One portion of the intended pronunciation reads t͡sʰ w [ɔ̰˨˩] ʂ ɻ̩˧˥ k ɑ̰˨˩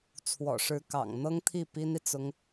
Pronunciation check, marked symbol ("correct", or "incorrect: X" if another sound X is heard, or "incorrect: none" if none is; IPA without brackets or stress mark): correct